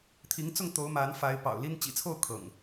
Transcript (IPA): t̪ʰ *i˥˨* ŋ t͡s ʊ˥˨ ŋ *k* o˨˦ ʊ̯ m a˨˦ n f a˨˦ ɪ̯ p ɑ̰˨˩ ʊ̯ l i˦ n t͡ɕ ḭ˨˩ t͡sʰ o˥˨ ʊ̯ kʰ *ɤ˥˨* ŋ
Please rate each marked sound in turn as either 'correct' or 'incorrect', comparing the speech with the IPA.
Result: incorrect: i˨˦, incorrect: t̪, incorrect: ɤ̰˨˩

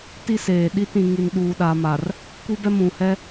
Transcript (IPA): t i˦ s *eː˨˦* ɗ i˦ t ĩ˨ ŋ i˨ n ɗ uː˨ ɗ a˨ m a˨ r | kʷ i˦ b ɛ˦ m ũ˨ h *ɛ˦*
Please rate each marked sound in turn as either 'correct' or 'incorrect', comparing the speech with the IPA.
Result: incorrect: eː˨, correct

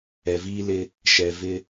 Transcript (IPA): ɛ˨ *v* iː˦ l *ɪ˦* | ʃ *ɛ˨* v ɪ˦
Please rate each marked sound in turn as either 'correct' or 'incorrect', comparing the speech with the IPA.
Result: correct, correct, correct

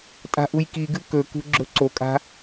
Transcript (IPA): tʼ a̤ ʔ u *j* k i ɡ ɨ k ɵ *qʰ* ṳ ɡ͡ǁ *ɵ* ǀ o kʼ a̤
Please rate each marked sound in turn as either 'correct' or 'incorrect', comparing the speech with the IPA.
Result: correct, incorrect: k, correct

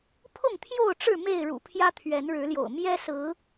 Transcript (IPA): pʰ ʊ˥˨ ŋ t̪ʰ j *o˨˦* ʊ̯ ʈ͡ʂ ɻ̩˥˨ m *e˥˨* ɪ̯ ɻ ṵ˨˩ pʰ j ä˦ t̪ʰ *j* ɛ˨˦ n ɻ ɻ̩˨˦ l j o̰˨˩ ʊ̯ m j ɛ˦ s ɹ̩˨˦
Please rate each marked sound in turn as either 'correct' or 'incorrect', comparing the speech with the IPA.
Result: incorrect: o˥˨, correct, incorrect: ɥ

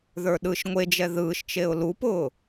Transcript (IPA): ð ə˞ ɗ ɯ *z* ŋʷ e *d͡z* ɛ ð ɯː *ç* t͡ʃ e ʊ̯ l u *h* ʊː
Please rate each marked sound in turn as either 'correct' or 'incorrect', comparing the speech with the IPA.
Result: incorrect: ʃ, incorrect: d͡ʒ, incorrect: ʃ, incorrect: p

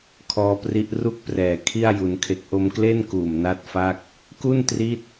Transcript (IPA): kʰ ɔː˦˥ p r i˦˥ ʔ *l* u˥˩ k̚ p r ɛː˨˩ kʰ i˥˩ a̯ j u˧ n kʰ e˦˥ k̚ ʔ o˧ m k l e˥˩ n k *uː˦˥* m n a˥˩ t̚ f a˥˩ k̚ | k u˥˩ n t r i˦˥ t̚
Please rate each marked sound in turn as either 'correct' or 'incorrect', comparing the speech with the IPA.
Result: incorrect: r, incorrect: uː˨˩

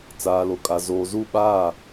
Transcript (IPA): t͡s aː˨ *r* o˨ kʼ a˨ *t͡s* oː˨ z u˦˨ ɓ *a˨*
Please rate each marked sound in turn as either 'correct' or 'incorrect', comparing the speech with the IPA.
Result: incorrect: l, incorrect: z, incorrect: a˦˨

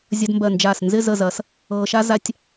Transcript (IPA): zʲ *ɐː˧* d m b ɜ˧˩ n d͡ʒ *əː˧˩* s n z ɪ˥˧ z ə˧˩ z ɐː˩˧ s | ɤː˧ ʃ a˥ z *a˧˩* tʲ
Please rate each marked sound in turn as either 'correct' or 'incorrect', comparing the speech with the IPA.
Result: incorrect: ɐ˧, incorrect: aː˧˩, incorrect: a˧

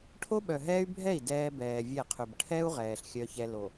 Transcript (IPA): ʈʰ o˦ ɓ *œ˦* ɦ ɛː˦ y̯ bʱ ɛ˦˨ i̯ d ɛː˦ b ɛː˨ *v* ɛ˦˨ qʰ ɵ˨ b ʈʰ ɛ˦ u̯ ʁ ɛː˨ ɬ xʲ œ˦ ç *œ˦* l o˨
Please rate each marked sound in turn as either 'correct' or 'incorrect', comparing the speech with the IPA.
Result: incorrect: œ˨, incorrect: vʲ, incorrect: ɛ˦

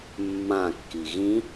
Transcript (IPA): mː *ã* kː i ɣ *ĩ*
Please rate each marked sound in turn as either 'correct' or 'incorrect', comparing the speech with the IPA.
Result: correct, correct

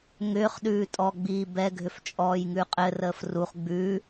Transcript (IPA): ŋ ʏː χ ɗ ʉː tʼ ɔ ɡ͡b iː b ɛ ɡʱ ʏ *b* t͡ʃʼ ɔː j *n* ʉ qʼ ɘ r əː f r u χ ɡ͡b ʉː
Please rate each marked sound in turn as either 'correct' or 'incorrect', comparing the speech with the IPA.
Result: incorrect: f, incorrect: ŋ

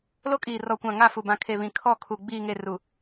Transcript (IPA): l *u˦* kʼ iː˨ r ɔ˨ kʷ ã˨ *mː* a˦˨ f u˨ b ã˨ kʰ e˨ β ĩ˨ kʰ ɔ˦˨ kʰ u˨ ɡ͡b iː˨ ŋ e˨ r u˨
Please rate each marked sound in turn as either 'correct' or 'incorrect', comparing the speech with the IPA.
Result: incorrect: o˦, incorrect: ŋ

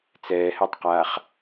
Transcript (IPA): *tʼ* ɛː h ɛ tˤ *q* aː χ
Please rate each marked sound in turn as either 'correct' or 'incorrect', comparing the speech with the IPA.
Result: incorrect: t͡s, correct

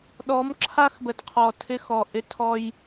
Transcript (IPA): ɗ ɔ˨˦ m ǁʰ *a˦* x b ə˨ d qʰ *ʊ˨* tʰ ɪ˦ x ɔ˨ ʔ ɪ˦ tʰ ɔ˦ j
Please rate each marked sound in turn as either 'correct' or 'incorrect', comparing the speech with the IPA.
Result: correct, incorrect: ɔ˨

